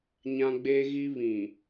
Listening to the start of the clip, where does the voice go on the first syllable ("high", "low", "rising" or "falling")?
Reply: high